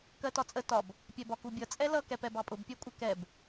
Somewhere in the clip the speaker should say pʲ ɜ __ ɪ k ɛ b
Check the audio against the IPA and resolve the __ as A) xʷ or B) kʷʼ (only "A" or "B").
B